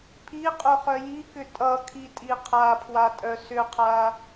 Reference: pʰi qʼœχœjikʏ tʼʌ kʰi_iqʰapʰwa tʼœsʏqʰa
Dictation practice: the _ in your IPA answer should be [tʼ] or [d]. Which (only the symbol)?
tʼ